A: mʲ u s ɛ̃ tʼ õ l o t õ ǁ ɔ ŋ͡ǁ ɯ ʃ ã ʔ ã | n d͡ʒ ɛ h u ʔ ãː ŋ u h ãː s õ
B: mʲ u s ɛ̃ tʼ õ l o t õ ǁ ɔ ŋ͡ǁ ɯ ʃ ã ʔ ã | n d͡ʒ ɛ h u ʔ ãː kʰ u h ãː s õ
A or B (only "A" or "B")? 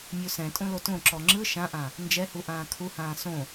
B